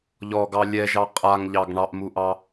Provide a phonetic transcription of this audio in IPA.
ʎɔɡɑ lʲɛʒɑ qʼaŋʎɑɡ ɳɑʔmuʔɑ

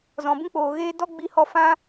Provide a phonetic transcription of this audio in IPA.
zɔ̃˨bũ˦k͡poː˨ ɣeː˦ dɔ˦ ɡ͡bi˧hɔ˧ fã˦

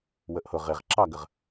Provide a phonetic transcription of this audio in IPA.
wəʔhʊʁ ɪʁ ǁɑɡəʁ

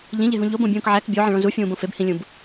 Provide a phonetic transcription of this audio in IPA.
ʎĩʎeɦũ ʎobõbʲũːk ʕæk bʲoʕẽɭõ zufʲũːbõ febhĩlʲũb

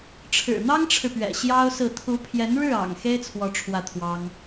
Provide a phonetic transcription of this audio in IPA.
ʈ͡ʂʰɻ̩˨˩n̪ɑ˥ŋʈ͡ʂʰɻ̩˨pɥɛ̰˨˩ ɕjɑ˥ʊ̯sɹ̩˥˩ t̪ʰu˧˥pʰjɛ˧˥n ɻɻ̩˥˩ɑ̰˨˩ŋ xe˥ɪ̯t͡sʰwɔ˧˥ ʈ͡ʂʰwä˥˩t̪ʰwɑ˥ŋ

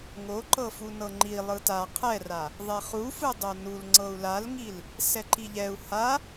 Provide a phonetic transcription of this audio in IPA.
ŋoǃɤfunɤ ŋ͡ǃi lˠɯta qʰɛra | ðˤɛχufɯ dˤonul ŋ͡ǀɤu̯lalŋil | sɛǃiʎɛu̯ ha

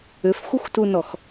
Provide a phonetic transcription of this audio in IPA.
ʏfxʷəxʷtunɔx

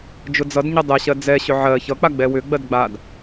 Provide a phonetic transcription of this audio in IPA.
d͡ʒʊd͡zʌdɲʌ dˤɛɕɜ d͡zɛɕʏ ʕɜ çʌk͡pa ɡ͡bɛwʏɡ͡bɜd ɡ͡bad

